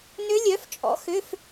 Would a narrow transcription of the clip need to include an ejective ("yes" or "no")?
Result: yes